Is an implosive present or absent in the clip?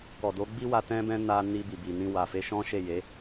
absent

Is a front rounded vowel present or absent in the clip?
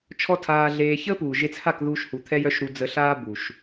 present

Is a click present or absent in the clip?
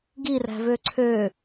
present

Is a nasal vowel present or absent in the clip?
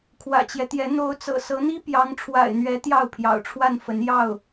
absent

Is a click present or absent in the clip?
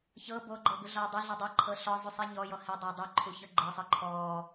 present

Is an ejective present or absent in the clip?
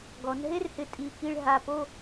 present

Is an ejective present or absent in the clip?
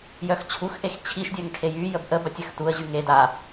absent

